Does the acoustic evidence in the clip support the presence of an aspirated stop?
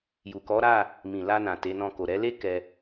no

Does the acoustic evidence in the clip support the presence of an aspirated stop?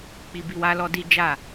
no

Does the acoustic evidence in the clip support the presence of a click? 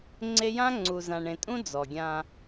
yes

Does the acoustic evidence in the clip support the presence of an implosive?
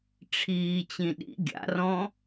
yes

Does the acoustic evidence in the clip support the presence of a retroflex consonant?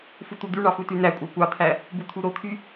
yes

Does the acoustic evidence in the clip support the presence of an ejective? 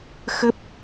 no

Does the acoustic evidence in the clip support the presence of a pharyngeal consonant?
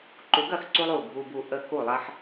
yes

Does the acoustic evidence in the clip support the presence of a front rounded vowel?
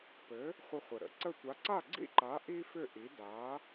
yes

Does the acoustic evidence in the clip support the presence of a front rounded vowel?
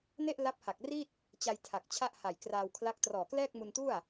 no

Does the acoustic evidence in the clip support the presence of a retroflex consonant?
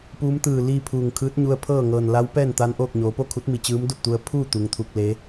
no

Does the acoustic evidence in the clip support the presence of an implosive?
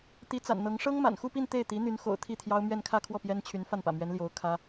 no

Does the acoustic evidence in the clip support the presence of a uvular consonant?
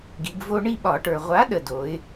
yes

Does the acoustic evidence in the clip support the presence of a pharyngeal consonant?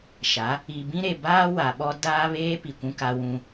no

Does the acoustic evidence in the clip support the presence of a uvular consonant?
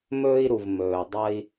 no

